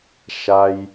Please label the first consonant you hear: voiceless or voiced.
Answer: voiceless